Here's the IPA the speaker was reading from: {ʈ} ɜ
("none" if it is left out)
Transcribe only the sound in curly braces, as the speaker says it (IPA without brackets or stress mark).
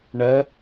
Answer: ɳ